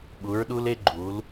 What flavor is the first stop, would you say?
implosive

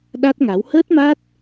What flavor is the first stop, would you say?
implosive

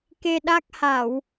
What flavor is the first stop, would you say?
plain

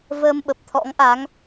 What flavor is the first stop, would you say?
implosive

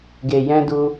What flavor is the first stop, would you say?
plain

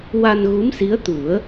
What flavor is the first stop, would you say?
plain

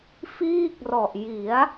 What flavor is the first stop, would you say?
plain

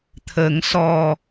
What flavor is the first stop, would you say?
aspirated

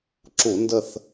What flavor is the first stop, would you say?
click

